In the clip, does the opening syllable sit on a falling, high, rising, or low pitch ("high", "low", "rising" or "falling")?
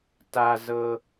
low